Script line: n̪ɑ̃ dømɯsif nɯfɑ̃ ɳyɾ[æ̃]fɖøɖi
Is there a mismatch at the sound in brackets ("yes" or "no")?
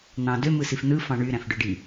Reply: no